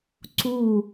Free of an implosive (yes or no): yes